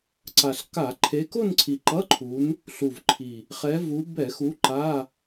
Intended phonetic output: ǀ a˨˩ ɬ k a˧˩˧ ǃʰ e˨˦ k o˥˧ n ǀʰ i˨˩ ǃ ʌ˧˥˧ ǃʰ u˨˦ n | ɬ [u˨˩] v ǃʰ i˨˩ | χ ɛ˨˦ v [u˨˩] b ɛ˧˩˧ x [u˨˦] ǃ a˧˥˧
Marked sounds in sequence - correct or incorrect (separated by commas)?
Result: correct, incorrect, correct